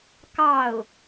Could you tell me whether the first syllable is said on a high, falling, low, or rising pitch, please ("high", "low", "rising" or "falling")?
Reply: falling